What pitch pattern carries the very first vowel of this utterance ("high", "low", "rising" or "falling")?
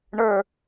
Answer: falling